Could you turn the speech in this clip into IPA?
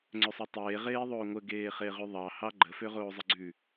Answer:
ŋ͡ǀøsˤɑtˤeː ʁeːðˤoːŋʷə ɡeːχeʁyðˤɑ hɑɡ͡ǃə føʁoːzˤəɡ͡ǀʉ

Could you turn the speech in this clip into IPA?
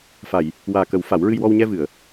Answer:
fa˨˩˨j | waː˨˩kə˨˩˦w fa˨˩˦wɹɨ˧jwɔ˧w ɲɛ˧vɨ˨˩˨ə̯

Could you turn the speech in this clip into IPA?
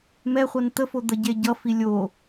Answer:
mɛχʷʌn t̪əfod̪ə ɟeɟʌfi lʲo

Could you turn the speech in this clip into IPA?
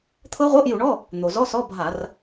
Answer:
t̪ʰɤ˦˥ʁʷɤ˧˥˧ʔju˧˩˧ɳɔ˧˥˧ | n̪o˩ zɔ˧˥˧sɔ˧˥˧bʱa˧˩˧r

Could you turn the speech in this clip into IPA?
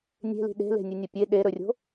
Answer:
nʲe̤li̤ ɗe̤le̤nʲɨnʲɐ pʲe ɗeɾɵrʲo̤

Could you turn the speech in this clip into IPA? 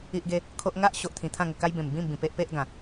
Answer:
i˦ʔɡe˦ | kʰo˦ʔ ŋa˦ʔɕo˨ʔt̪ʰĩ˨˩ t̪ʰã˥˧ŋə˨˩ka˦jbẽ˨˩m bĩ˥˧mbĩ˨˩ pe˦ʔpe˦ʔɡã˨˩

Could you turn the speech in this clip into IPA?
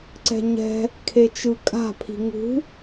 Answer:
ǀɛ̤ɲɛ̤ | kʰet͡ʃɯkʼa̤ pʰi̤ŋṳ

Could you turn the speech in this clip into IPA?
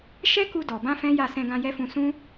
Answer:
ʃɛ˦ ku˧dɔ˨bã˧ fɛ̃˦ja˦˨ sɛ̃˧ɡã˧jɛ˦fũ˧ sũ˦

